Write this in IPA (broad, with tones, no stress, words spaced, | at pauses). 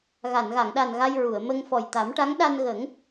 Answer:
ɣa˨˩˨nɣa˨˩˨ŋɗa˨˩n ɣa˧jɹu˨˩˨ə̯mə˧ŋ fɔ˨˩jt̪a˨˩˦mʈa˧˥ŋɗa˧n ɣə˨˩˦ŋ